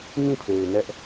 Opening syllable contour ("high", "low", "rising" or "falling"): falling